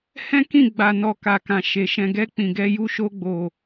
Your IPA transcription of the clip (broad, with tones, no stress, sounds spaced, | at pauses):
h ɛ̃˦ k ĩ˦˨ ɡ͡b a˨ n ɔ˨ k a˨ k ã˨ ʃ e˨ ʃ ɛ̃˨ ɡ ɛ˧ k͡p ĩ˨ ɡ ɛ˧ j u˧ ʃ o˧ ɡ͡b o˨